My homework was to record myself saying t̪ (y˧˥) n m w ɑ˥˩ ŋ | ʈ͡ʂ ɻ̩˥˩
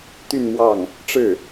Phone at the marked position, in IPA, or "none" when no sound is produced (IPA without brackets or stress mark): y˥˧